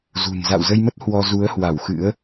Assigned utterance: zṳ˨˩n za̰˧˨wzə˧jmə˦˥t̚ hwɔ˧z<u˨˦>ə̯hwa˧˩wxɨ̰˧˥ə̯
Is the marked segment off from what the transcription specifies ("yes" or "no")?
no